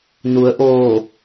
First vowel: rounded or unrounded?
rounded